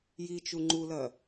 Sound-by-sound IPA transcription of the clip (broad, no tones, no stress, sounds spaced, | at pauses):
j i t͡ʃ u ŋ͡ǃ u l ɐ